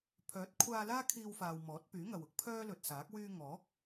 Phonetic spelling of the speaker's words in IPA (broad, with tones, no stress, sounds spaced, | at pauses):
pʰ œː˨˥ t̚ kʷʰ aː˧ l aː˥ kʰ iː˧ w f aː˨ w m ɔː˨˥ t̚ p yː˨˥ ŋ ɐ˨ w ʊ˥ k̚ pʰ œː˥ l ɵ˨ t̚ s aː˨˥ k̚ w yː˧ ŋ ɔː˨˥ k̚